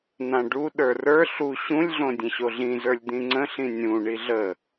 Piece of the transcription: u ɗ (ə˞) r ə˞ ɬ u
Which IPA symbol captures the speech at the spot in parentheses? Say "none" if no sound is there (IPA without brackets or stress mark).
ə˞